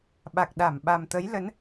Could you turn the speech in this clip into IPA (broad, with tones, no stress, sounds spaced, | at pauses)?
ɓ a˨˩ k̚ ɗ a˧˩ m ɓ a˨˩ m t̪ ə˨˦ j l ə˨˦ n